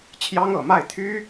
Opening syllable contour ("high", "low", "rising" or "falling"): high